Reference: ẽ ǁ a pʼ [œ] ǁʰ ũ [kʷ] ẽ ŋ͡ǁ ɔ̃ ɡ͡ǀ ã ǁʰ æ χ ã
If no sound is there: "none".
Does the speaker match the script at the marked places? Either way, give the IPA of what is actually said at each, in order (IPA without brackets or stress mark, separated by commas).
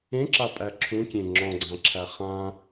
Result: æ, kʲ